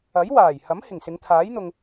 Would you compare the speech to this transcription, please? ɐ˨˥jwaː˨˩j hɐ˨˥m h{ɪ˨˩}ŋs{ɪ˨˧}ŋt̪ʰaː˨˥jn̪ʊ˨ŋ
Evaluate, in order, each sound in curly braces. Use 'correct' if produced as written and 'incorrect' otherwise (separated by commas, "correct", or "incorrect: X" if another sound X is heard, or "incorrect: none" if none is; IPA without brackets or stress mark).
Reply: correct, correct